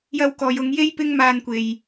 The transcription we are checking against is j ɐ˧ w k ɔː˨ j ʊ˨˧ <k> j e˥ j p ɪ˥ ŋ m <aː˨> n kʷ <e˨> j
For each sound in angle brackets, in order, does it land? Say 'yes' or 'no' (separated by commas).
no, no, yes